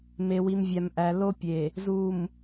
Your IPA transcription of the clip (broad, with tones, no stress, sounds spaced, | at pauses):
m e˨ w i˨ m vʲ æ˨ m ʔ æ˨ l o˦ pʲ e˨ | z u˨ m